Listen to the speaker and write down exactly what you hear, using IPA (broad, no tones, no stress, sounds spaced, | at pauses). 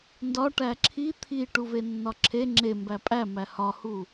n d ɒ ʈ æ ǁʰ i t̪ʰ i ʈ u v e nː ɒ ǁʰ e ŋ͡ǁ e m b æ pʼ æ m æ h ɒ h u